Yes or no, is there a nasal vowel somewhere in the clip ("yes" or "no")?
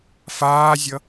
no